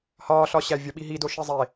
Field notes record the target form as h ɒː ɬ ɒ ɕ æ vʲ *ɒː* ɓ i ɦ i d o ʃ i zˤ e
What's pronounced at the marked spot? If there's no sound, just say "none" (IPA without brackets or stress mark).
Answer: ɒ